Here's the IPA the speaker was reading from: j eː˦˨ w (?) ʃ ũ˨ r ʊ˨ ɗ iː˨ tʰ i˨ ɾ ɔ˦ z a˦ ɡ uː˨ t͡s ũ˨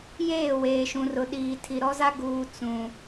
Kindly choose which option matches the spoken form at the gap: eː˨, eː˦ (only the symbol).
eː˨